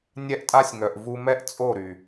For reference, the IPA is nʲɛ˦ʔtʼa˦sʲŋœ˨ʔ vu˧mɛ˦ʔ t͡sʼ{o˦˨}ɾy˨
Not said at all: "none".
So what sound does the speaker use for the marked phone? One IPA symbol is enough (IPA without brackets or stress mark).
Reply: o˦˨